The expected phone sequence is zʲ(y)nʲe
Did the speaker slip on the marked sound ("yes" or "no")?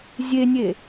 yes